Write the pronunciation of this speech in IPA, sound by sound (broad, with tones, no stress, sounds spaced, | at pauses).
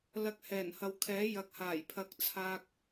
l ɐ˧ k̚ h ɛː˨˩ n h ɐ˨ w kʰ ɛː˨˥ j ɐ˨ k̚ h aː˨˩ j pʰ ɐ˨˥ k̚ t͡sʰ aː˧ k̚